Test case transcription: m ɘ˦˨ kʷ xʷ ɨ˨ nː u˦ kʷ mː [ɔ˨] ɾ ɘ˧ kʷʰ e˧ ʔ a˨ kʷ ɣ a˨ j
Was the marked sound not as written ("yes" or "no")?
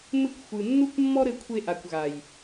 yes